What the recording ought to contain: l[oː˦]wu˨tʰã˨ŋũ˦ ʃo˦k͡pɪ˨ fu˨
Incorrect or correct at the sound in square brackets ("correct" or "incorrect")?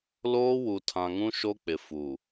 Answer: correct